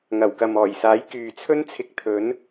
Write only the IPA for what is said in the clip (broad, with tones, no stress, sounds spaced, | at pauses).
ŋ ɐ˨˩ w k ɐ˨ m ɔː˨˩ j s aː˨˥ j k yː˨ t͡sʰ ɵ˥ n t͡sʰ ɪ˧ k̚ t̪ʰ ɵ˨˥ n